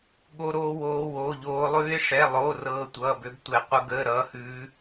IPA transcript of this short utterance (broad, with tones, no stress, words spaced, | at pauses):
ɠo˦˥ɾoː˦˥woː˦˥ woː˧˥˧ʎoː˦˥ lˠʉː˦˥ɪ̯ʂɛ˧˥˧ lˠoː˧˥˧r ɤː˦˥tʷʌː˧˥˧bø˦˥btʷɛ˦˥ qʷʌ˦˥ɡəː˧˥˧ɾʌː˦˥hʉː˦˥